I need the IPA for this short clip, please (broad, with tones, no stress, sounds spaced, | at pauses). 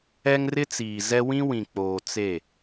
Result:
ɛ˦ ŋ r ɪ˦ t͡s iː˨ z ɛ˦ w ĩ˦ w ĩ˨ k͡p oː˨ t͡s e˦˨